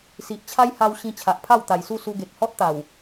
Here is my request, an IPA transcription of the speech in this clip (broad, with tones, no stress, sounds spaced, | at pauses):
s i˨ ʔ t͡ɕʰ a˦ j h a˧ w ɕ ĩ˧ t͡ɕʰ a˨ ʔ pʰ a˥˧ w t̪ a˨˩ j s u˥˧ s u˧ ɡ e˨ k̚ h ɔ˦ t̚ t̪ a˨˩ w